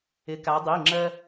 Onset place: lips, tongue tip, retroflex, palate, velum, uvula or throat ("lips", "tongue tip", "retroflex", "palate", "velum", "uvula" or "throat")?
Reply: velum